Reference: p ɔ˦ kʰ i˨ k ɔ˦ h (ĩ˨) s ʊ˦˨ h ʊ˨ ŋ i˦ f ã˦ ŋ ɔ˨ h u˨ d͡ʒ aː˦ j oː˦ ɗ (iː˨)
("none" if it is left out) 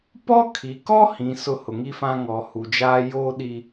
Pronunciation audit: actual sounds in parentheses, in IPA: ĩ˨, i˨

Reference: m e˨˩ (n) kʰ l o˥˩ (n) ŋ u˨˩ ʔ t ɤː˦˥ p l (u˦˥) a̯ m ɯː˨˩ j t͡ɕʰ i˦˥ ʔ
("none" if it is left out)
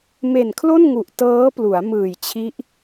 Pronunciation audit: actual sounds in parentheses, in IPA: n, n, u˩˦

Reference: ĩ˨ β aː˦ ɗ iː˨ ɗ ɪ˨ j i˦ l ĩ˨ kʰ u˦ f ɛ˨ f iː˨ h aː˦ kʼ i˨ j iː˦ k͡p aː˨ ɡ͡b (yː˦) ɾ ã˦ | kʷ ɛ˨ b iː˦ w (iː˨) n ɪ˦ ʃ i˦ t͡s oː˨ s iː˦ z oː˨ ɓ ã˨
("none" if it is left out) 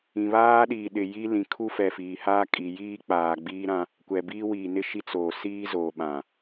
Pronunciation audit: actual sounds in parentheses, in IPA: iː˦, iː˨

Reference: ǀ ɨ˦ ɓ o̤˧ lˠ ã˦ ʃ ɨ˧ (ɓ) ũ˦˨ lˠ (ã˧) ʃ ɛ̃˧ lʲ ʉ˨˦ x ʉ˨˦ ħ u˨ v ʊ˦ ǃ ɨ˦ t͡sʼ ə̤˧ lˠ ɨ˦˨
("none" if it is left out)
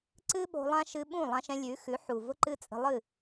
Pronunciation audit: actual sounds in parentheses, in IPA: ɓ, ã˧

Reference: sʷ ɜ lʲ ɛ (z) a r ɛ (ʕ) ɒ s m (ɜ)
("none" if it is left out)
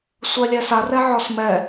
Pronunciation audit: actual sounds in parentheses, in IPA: s, ʕ, ɛ

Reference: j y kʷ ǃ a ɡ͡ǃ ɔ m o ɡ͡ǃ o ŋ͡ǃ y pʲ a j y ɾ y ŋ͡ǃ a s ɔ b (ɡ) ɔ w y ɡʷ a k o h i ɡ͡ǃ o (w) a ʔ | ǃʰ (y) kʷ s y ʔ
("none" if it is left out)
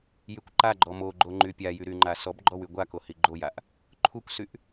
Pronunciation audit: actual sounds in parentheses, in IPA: ɡ͡ǃ, j, u

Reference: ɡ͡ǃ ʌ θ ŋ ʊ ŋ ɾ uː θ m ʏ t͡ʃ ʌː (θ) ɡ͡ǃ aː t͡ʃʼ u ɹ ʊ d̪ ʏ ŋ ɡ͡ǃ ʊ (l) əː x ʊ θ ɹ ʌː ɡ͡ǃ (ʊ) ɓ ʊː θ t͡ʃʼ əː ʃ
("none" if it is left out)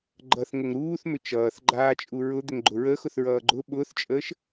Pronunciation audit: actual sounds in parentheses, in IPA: θ, ɹ, ʊ

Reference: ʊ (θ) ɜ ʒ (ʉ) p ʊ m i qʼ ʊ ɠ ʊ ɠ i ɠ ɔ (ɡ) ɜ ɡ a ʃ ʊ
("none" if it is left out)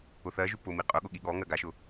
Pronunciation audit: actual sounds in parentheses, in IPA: θ, ʉ, ŋ

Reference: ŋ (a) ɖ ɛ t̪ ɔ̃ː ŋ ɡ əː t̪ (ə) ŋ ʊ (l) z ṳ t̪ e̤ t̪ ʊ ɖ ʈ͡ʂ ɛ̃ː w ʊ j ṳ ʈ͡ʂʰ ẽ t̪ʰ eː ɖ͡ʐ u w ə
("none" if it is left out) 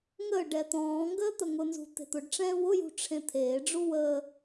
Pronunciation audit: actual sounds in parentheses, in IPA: ə, ə, n

